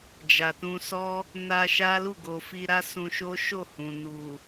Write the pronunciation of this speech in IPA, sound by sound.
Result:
d͡ʒa˨tũ˧sɔ˦ | na˧ ʃa˦lu˦˨ ɡo˨fi˧ɾa˦ sũ˧ʃo˦ʃo˦˨hũ˨ nu˨

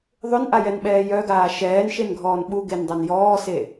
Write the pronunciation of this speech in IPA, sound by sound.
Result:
ðˤʏnʔajɛnɓɛː jœɡaː ʃɛːnʃenɡʱɔːn ɓuɡendˤœn jɔːse

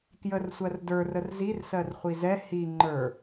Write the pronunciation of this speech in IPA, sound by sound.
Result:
kjərsʷɜr də˞rər zirsɜr χʷizɛ hi ŋ͡ǃə˞

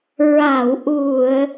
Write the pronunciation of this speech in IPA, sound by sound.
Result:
ɹa˨˩˨wʔu˨˩˨ə̯

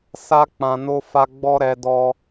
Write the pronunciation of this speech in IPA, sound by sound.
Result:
sa˧k͡pã˨no˧fa˧ ɡ͡bɔ˦ɾɛ˧dɔ˧

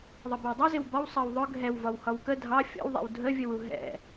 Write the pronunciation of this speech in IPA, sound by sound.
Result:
ðˤʌbɪwdˤəzɪw bɒwsˤɜw ðˤʊ ɡʱɛwvɒw hɒwkə dʱɑ fʲɔ̰wðˤɛ̰w dʱəvʲəwu ɦɛ̰

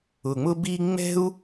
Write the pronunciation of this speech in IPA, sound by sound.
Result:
ʊ˧ŋ͡mʊ˥bi˥ ŋ͡mɛ̤˥u̯

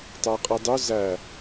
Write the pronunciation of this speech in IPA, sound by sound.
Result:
tˤæqʼɯdˤø zæ

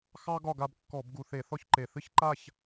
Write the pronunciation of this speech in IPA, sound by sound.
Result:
xɑ˥ ɡɒ˥˧ɡa˥˧b kːɔ˧˩˧b ɡu˨˩θe˧˩˧ θɔ˥˧çǃe˨˩ θɨ˥çǃa˥˧ç

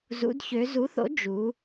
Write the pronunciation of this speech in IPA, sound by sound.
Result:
zṵ˩˧dçø˩˧zu˩˥θo̰˩˥ d͡ʒu˩˧

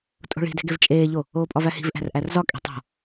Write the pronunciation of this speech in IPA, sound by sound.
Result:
tʼo̤ɭi̤de̤ɡev t͡ʃʼeːʎo | oːpʼɒvæhi̤v ʔæ̤rʔærzɒ kʼi̤tˤo̤

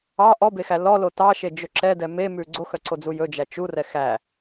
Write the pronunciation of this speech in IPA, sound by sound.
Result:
ɑ ʔɔbexæ lɔlo tɑʃed͡ʒɵ ǁɛdɛ memʉ ɡ͡ǀoxœǀod͡zu jɵd͡ʒæ t͡ʃurɛ xæ

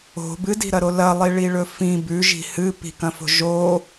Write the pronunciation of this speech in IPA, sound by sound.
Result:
o̤ bɨdi̤ɾɐɾo lɐlˠiɭiɭɵ fĩ bʉʒi̤ hɨ pi̤kɐ̃fo̤ ʒo

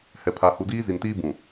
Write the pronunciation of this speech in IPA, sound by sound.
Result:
hɛ˨pʰa˨ hu˨diː˦zi˨ntiː˦ bũ˨

